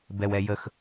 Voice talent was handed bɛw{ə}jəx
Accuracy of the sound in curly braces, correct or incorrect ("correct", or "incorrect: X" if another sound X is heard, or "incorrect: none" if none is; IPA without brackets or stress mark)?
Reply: incorrect: ɛ